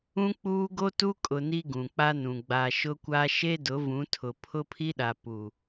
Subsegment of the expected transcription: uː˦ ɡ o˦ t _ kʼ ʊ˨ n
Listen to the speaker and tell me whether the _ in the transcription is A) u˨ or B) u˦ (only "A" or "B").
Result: B